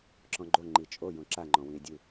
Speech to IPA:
ǁɔ̃ɡ͡ǃo ŋ͡ǃit͡ʃʼo jõǁaŋ͡ǃɔ̃wĩe̯ dʲu

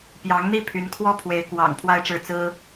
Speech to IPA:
pjɑ˧˥ŋn̪i˥˩ pʰy˧˥nkʰwɔ˥˩ pʰwe˧˥ɪ̯ kwɑ̰˨˩ŋ pʰwa˥ɪ̯ʈ͡ʂɻ̩˥˩ t͡sɹ̩˥

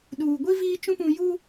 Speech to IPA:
ɗuː˨ɡʷi˦ viː˦t͡ʃũ˦pũ˨ ju˦

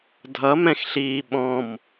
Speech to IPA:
dʱʌmɛ̃xɬiː ɓɔ̃m

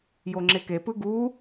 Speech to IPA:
joŋ͡ǁekepɯ ɡu

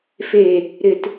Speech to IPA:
fe | ɾɪt

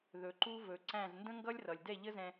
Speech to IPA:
ðɵ˨ǃu˦vɵ˨ǀæ̃˦˨z ndə̃˦ŋɡʌ˦lʲrʌ˨lʲ dɛ˦˨ʎə˦zɛ̃˧

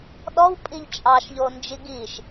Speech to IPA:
ɗɔwpʼiʎ t͡ʃʼɑʃʎond͡ʒi ɡiʃ

